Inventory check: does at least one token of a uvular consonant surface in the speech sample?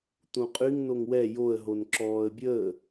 yes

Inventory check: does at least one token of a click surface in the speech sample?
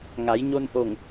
no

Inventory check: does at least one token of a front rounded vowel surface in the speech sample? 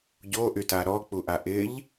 yes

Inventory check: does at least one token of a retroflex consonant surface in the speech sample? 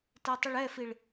yes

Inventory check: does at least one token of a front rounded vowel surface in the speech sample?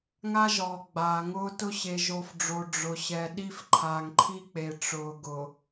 no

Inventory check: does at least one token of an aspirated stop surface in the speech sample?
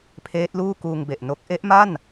yes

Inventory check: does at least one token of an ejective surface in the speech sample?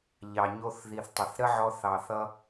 no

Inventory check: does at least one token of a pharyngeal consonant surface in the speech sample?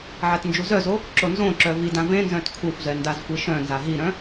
yes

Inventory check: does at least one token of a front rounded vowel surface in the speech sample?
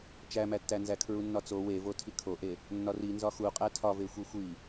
no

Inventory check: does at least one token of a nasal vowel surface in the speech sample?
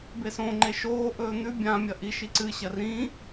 yes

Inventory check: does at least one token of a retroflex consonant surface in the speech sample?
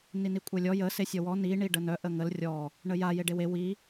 yes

